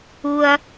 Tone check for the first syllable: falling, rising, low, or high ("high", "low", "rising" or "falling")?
low